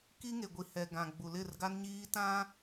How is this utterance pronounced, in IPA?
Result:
k i˦ ŋ e˨ ɡʷ i˨ h ɛ˨ ɡ ã˨ ɡ͡b u˨ l ɪ˦˨ r ɡ a˦ n ɲ iː˦ t ã˦

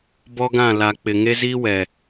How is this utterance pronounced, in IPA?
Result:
b ɔ˦ ɡ ã˦˨ l a˨ k͡p ɪ˨ ŋ e˦ z iː˦ w ɛ˨

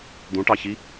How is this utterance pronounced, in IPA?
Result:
d̪ ũ ʈ ɑ ç i

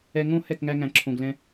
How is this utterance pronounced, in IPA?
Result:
ɛ˧ ŋ õ˦ h ɛ˦˨ k ŋ æ˧ ŋ æ̃˨ ǁʰ õ˨ ɡ l ɛ̃˧

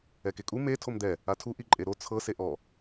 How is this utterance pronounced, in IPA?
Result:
ɛ k e kʼ u m e tʰ o m d̪ ɛ | a tʰ u ʔ i ǃʼ e ɾ o t͡sʰ ɤ s e ʔ ɔ

